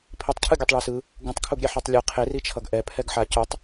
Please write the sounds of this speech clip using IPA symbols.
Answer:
pʰ i tˤ cʰ ɯ ɡʲ ɯ tˤ ɭ e s ɯ | ɡ ũ tˤ kʰ u ɡ ɾʲ e ħ ɯ tˤ lʲ ɯ qʰ e r i t͡ʃʰ ʌ ɡ ʔ ɛ pʰ ɛ ɡ ħ a c u tˤ

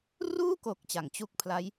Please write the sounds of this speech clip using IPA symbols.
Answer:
r uː˥˩ k o˨˩ k̚ t͡ɕ a˩˦ ŋ t͡ɕ u˦˥ k̚ pʰ l a˦˥ j

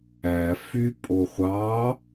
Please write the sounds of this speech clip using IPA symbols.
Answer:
æ f y pʼ o χʷ ɑ

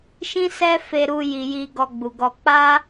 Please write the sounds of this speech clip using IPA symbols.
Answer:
ʃ ĩ˦ s ɛ˦ f e˧ ɾ u˦ j i˧ j i˧ ɡ ɔ˧ ɡ͡b u˨ ɡ ɔ˧ k͡p a˦

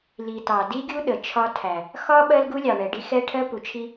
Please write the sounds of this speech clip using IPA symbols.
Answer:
l i˨ t ɑ˨ d i˦ ɡʲ u˦ ɗ ə˨ t͡ʃʰ ɒ˦ tʰ æ˨ | x ɒ˦ ɓ ɜ˦ l ɡ u˦ lʲ ɑ˨ ɳ ɛ˨ ɖ i˦ x ɛ˦ ʈʰ ɜ˦ p u˨ t͡ʃʰ i˦

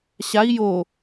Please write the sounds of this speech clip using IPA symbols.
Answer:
ɕ a i̯ j o

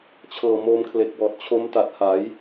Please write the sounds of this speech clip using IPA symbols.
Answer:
t͡ɕʰ ɤː˨˩ m oː˧ m kʰ l e˨˩ k̚ w ɔː˨˩ t̚ t͡ɕʰ o˦˥ m t a˨˩ t̚ h a˩˦ j

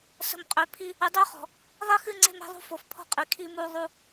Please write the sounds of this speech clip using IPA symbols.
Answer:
s ə̤˨ m qʼ ø˨ pʰ i˦ | ɨ˨ dˤ ø˦ χ ɔ̤˨ | ðˤ i˦ x ɨ˦ ŋ͡ǀ e̤˦ m e̤˦ ðˤ ṳ˦ f o˨ f pʰ ɔ̤˦ qʼ i˨ kʰ i˦ m u˦ ðˤ u˦

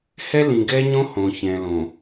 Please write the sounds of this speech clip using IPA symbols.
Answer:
h ɛ˦ l ĩ˨ ɡ ɛ˦ ɲ õ˦ h õ˨ ç ɛ̃˨ l õ˨

